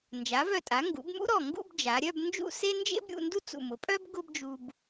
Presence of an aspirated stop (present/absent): absent